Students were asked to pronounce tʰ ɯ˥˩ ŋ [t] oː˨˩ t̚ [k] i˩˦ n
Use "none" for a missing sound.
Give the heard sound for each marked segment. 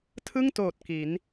t, k

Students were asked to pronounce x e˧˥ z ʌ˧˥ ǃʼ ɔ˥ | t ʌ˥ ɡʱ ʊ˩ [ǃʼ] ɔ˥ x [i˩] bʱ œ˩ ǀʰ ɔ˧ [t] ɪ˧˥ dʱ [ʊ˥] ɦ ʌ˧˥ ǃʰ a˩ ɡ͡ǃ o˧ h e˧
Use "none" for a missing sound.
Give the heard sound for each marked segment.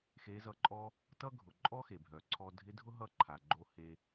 ǃʼ, e˩, dʱ, ʊ˥

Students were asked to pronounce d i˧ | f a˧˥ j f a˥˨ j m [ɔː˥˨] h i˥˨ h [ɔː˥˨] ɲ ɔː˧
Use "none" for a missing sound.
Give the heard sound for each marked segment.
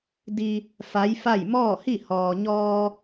ɔː˥˨, ɔː˩

